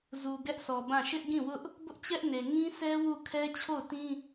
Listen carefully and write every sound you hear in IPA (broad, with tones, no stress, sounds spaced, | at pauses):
z u˨ ɡ ɛ˦ ʔ sʰ ɔ˨ b ã˦˨ ʃ ɪ˦ ʔ ɡ ĩ˦˨ w ʊ˦ ʔ | b ʊ˦ ʔ t͡ɕ ɛ˦ ʔ n e˨ ŋ ĩ˦ s ɛ˦ w u˦˨ kʰ ɛ˦ t͡ɕʰ o˦˨ ʊ̯ t ĩ˦